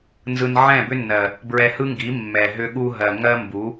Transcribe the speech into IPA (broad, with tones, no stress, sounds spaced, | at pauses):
n z ɯ˧ n ʕ ɛ̃˦˨ b ʏ˦ nː ɜ˨ | b ɹ ɛ˧ h ɯ˦ ŋ ɡ i˨˦ mː ɛ˨ ɦ ʏ˧ ɠ u˧ ɦ ɜ˨ ŋ ɜ˦ m b u˨˦